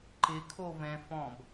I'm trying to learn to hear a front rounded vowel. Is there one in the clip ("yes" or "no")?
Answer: no